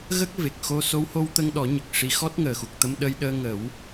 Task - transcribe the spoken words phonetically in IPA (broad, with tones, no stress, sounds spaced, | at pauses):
ɣ ə˦˥ k̚ v e˨˩ k̚ x o˧ s o˧˥ w h o˧ w t̪ ə˧ ŋ ɗ ɔ˨˩˦ ɲ ə˨˩ k̚ ʂ i˧˥ x ɔ˦˥ t̚ ŋ əː˨˩ x u˨˩ k̚ t̪ ə˧ m ɗ ə˧ j ɗ əː˧ ŋ ə˨˩˦ w